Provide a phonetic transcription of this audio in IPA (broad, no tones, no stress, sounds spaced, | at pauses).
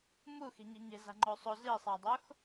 m u x i̤ ɲ i̤ ɲ e̤ z a̤ ŋ͡ǃ o sˤ o z i sˤ a dˤ o x